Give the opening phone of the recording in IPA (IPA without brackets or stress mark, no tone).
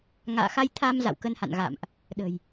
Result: ŋ